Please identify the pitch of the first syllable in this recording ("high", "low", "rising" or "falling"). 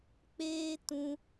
high